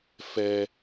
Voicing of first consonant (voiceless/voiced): voiceless